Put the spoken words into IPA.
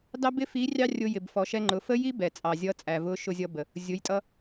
d ɑ˥ b ɪ˥ f i˧˥ rʲ ɑ˥ rʲ ʊ˧ j ɪ˩ b f ɔ˩˧ ʃ ɛ˧ ŋ͡ǃ ʊ˩˧ f ə˥ j i˥ b ɛ˩ t͡sʼ ɑ˩ zʲ ʌ˧˥ t͡sʼ æ˩ v ʊ˧˥ ʃ ʊ˧ zʲ ʌ˧ b ə˩ | zʲ ʊ˩˧ j tʼ ʌ˧

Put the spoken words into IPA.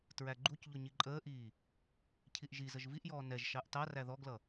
t ɹ æ ɡ͡ǃ u c ʎ ʊ ɲ i ǃʼ əː ʔ iː | cʰ i ʔ ʒ i z ə ʒ v i ʔ j ɔː n ɛ ʒ ʃ ɑ ʔ t ɑ r æ ð ɔ ɡ l ʌ

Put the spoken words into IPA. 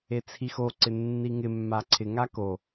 e t͡sʰ i x o ǀ ɪ nː i ŋ ɪ mː a ǀʰ ɪ ŋ a k o

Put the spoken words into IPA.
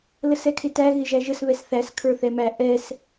l ə s ɛ kʰ ɪ t æ ɣ ɪ ʒ æ ʒ ə s β ɛ s θ æ s kʰ ə˞ θ ɛ m æ ʔ ɛ s

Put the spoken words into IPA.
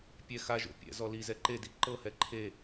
pʲ ɛ x a ʒ o̰ pʲ ɛ̰ z ɔ l i z ɛ ǃ e d i ǃ ɤ h ɛ ǃʰ e

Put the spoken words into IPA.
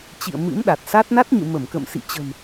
t͡ɕ ḭ˧˨ ə̯ m ɨ̰˧˥ m ɗ a˨˩ t̚ s a˦˥ t̚ n a˦˥ t̚ ɲ ɨ̰˧˨ m ə˧˩ m k ə̰˧˨ m s ḭ˧˨ t͡ɕ ə̤˨˩ m

